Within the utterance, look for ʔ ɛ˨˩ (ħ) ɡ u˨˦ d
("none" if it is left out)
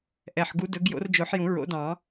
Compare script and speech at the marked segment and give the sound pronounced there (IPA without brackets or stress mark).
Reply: ħ